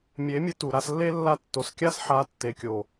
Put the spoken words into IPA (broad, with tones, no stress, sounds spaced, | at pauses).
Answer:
mʲ e˨˦ mʲ ɨ˧ t u˨ ɾ a˧ s lː e˦ lː a˦˨ tː o˨ s kʲ a˦ s ħ a˨˦ tː e˨ kʲ o˨